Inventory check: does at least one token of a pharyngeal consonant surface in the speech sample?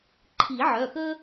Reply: yes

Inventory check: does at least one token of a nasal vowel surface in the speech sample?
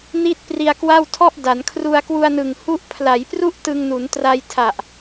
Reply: no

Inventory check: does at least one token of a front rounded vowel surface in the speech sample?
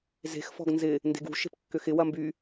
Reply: yes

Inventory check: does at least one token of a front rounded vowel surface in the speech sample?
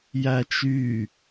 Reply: yes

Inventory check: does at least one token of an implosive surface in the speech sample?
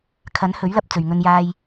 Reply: no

